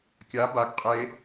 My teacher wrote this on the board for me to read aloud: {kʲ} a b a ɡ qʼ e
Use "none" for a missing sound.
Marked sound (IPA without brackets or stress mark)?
kʲ